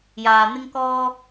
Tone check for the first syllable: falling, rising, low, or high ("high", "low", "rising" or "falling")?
low